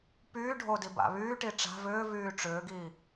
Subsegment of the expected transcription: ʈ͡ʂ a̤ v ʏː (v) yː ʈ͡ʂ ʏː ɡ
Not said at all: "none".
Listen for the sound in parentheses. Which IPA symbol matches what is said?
v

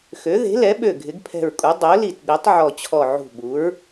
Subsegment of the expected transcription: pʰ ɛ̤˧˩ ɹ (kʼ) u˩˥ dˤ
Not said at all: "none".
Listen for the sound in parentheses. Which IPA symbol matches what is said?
kʼ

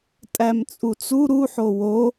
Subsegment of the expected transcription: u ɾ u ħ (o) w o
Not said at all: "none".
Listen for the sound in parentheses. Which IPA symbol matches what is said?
o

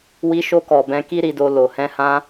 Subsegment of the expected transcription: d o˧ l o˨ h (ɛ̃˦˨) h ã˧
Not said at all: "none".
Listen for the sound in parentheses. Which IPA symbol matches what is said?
ɛ̃˧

